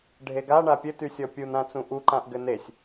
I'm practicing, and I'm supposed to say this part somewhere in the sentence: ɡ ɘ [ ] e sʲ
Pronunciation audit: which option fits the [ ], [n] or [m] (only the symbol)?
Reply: n